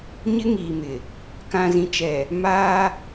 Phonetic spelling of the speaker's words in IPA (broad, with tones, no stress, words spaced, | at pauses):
ɲɪ˦ŋiː˨mɪ˨ | kã˨zĩ˨t͡ʃɛ˨ | maː˦